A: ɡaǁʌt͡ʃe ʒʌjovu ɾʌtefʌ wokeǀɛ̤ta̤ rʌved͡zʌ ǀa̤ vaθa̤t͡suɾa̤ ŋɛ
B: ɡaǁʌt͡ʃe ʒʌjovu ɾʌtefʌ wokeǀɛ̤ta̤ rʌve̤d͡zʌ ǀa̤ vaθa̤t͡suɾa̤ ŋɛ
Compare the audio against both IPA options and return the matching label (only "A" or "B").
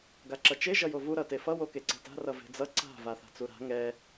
B